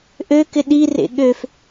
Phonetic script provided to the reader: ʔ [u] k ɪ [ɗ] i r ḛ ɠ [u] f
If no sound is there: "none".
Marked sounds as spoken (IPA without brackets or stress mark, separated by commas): ø, ɗ, ø